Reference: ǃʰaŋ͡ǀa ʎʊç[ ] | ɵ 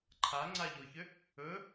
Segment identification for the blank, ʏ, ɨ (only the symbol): ʏ